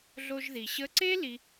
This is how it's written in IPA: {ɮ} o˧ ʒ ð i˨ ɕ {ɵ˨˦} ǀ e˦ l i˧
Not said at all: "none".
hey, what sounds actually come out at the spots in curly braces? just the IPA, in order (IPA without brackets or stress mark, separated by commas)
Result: ɮ, ə˨˦